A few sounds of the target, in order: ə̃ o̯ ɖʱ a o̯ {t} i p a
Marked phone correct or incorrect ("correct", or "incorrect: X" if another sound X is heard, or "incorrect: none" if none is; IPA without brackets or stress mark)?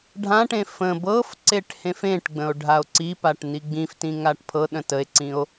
incorrect: ǀ